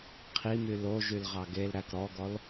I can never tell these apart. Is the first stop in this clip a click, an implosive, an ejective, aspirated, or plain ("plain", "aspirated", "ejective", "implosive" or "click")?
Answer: aspirated